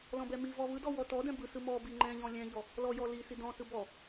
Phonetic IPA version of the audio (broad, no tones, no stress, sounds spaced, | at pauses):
l ɔ̃ b ɛ m i v ɔ v ɯ d ɔ w ɔ t ɔ d ɛ̃ b ɯ s ɯ m ɔ b i ŋ͡ǃ ɛ̃ ʎ ɔ̃ lʲ ɛ̃ ʎ ɔ | l ɔ j ɔ l i s i d ɔ̃ s ɯ b ɔ